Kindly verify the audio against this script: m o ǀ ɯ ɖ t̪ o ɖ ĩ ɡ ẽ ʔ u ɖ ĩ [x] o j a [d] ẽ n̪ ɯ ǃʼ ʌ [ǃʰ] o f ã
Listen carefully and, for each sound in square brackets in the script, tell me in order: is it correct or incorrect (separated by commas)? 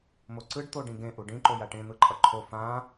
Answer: incorrect, incorrect, correct